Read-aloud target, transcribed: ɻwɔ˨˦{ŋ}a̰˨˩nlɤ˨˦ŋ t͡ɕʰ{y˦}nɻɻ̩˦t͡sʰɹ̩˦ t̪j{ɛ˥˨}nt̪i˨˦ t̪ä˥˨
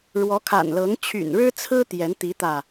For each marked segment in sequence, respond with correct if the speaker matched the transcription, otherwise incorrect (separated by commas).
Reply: incorrect, incorrect, incorrect